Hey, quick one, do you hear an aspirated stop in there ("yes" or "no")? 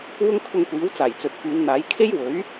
yes